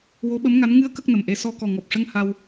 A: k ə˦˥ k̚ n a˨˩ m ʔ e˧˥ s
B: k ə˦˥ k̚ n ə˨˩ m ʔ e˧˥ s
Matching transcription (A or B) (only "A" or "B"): B